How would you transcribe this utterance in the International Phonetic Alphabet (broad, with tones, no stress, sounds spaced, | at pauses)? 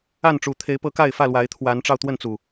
a˥˨ n ʈ͡ʂ u˨˩ t̪ʰ e˨˦ ɪ̯ p ɤ˧ k a˥˨ ɪ̯ f ä˥˨ l w a˨˦ ɪ̯ t̪ʰ w a˨˦ n ʈ͡ʂ ɑ˧ ʊ̯ t̪ w ə˥˨ n t͡s u˨˩